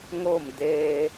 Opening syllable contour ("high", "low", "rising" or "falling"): falling